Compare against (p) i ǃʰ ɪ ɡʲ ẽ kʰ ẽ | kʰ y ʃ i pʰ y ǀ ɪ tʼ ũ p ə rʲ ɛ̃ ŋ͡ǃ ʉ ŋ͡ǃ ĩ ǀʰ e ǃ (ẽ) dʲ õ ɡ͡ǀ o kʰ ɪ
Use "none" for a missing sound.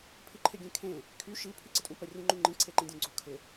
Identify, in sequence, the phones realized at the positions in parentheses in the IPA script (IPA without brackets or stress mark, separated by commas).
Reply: pʰ, ĩ